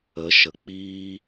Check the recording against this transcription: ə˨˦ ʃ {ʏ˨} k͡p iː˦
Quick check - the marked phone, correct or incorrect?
incorrect